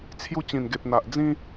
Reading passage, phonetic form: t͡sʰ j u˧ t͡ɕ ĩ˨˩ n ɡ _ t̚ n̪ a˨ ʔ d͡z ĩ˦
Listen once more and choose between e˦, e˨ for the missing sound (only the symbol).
e˨